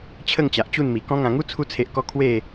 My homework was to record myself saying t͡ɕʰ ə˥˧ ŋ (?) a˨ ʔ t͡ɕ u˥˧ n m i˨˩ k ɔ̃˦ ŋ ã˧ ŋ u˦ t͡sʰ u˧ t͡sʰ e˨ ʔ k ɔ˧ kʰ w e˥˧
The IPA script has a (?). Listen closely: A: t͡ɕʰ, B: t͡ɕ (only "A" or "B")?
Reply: B